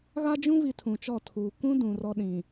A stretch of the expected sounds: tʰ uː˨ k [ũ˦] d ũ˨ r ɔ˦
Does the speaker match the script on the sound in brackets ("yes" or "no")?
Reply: yes